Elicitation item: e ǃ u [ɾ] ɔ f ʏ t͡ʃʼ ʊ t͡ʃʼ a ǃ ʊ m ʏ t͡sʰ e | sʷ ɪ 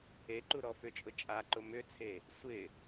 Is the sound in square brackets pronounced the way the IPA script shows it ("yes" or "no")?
yes